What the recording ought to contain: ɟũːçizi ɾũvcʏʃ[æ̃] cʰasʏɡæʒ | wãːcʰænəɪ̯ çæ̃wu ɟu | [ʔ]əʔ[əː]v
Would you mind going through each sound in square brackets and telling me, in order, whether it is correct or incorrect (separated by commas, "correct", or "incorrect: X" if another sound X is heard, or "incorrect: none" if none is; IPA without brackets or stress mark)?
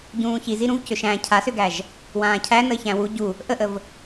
correct, correct, incorrect: ə